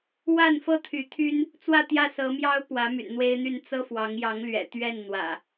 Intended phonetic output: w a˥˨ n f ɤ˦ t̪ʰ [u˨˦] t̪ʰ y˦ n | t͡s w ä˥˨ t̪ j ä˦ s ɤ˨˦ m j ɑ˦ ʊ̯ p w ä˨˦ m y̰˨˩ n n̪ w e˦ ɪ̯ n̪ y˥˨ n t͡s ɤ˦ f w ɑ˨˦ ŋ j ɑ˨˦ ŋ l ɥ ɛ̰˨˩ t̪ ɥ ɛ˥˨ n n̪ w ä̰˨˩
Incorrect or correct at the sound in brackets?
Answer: incorrect: y˨˦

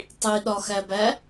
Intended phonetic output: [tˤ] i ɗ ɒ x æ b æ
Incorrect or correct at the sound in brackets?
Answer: correct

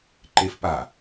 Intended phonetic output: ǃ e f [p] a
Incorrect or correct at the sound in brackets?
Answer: correct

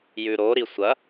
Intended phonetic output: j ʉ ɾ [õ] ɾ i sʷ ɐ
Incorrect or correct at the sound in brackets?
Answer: incorrect: o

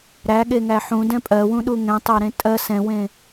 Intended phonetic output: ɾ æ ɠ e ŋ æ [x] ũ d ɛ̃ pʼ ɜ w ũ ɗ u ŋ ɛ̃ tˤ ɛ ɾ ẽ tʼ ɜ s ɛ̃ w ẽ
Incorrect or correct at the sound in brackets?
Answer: incorrect: ħ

